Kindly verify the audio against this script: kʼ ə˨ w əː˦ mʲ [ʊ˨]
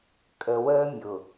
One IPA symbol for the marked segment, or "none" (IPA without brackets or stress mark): ʊ˨